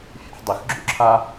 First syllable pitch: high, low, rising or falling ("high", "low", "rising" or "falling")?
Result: low